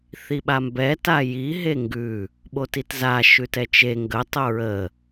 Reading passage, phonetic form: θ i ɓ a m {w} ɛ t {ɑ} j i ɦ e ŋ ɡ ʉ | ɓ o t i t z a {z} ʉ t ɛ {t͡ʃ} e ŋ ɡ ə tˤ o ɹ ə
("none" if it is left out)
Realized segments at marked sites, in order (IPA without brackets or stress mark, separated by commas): b, a, ʃ, t͡ʃ